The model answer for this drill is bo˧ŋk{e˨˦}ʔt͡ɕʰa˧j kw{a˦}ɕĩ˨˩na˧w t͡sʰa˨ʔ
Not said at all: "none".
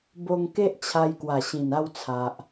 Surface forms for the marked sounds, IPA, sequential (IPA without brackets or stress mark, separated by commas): e˦, a˨˩